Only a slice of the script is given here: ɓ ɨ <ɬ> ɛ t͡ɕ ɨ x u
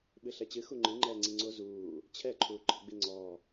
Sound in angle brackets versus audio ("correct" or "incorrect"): correct